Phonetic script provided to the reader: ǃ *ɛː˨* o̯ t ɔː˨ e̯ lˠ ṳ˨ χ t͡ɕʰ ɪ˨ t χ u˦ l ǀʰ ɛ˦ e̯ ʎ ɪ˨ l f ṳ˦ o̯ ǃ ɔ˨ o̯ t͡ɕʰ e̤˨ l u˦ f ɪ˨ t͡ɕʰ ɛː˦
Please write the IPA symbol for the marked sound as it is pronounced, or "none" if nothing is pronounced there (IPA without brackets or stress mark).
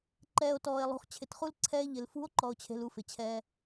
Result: ɛː˨